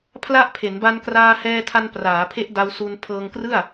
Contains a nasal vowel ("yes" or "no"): no